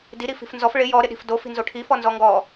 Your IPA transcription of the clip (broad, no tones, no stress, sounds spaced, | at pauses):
d i ɾ i f i̤ f n z ɔ f ɭ ɪ j ɔ ɾ ɪ ɗ i̤ f d o f i̤ n z o ʈʰ i f ɔ n z ɔ ŋ ɡ ɔ